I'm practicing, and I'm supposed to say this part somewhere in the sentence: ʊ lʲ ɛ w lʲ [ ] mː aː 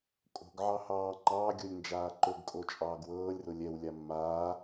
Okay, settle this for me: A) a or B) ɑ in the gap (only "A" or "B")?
A